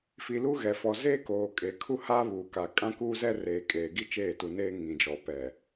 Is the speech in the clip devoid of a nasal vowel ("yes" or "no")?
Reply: no